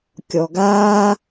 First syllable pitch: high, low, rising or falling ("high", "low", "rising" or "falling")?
low